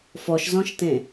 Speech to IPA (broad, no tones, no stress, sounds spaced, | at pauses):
f ɔ ʃ z ɔ̃ ʃ t ẽ